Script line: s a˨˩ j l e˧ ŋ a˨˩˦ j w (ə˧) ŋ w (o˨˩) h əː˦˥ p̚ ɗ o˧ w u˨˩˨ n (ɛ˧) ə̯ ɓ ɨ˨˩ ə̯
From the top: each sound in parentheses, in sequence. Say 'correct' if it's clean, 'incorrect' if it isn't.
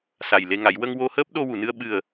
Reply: correct, incorrect, incorrect

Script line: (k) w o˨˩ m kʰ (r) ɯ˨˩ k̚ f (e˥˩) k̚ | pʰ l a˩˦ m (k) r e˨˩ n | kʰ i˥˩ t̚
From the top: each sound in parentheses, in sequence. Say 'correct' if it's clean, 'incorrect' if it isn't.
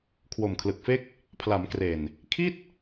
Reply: incorrect, incorrect, correct, correct

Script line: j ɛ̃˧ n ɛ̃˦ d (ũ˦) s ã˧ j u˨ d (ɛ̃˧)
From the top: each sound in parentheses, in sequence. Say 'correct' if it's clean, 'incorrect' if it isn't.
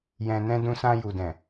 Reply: incorrect, incorrect

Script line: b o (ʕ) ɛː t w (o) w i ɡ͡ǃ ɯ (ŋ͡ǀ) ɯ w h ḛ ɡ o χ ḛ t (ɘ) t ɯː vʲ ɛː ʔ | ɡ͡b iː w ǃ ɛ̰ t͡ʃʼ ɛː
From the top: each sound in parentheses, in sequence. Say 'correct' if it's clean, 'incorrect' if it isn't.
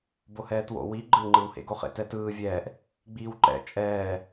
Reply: incorrect, incorrect, incorrect, incorrect

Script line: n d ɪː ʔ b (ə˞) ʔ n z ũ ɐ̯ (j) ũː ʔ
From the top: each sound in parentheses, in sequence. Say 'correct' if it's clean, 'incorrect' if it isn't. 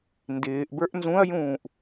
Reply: correct, correct

